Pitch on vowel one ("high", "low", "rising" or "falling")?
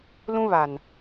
high